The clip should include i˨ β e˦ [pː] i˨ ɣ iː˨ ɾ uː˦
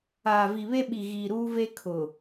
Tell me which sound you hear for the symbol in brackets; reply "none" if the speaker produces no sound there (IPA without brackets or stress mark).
ɓ